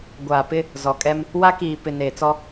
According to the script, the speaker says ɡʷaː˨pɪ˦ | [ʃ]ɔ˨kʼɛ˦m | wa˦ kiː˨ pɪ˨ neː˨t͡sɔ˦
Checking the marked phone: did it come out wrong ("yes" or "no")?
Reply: yes